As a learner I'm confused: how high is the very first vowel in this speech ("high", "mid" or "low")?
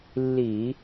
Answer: high